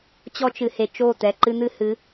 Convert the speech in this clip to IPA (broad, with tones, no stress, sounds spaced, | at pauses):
t͡ɕ ɔ˦ t͡ʃ ɨ˨ h e˨ t͡ʃ o˦˨ t̪ ɛ˨ ǃ ɨ˦ n̪ ɨ˦ h ɨ˨˦